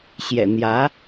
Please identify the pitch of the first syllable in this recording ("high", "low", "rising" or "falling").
low